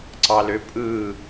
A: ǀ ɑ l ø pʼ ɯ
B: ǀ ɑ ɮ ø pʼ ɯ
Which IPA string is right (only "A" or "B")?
A